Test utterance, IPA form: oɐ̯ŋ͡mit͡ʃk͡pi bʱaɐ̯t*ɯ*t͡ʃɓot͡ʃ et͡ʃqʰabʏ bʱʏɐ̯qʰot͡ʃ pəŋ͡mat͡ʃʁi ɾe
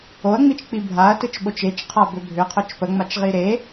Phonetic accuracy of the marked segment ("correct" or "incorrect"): correct